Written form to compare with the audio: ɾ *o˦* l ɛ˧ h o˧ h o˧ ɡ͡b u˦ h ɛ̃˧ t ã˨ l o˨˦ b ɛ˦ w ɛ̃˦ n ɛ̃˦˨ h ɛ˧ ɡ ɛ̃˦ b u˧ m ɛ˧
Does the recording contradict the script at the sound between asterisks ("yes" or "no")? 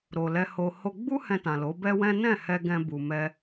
yes